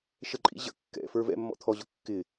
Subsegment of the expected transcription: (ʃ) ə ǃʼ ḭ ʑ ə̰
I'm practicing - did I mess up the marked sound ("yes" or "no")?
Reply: no